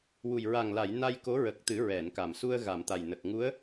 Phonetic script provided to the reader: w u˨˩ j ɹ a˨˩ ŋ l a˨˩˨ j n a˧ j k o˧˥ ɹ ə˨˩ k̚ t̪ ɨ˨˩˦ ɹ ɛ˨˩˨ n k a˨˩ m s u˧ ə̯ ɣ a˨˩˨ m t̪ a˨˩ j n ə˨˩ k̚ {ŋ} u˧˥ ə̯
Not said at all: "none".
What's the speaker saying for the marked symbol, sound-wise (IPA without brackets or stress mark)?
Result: ŋ